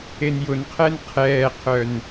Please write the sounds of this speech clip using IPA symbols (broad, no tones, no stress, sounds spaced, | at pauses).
e n j ʊ n qʰ ɛ n qʰ ɛː qʰ œ n